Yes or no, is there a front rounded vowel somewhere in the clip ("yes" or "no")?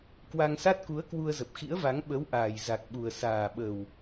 no